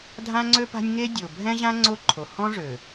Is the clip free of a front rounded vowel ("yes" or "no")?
no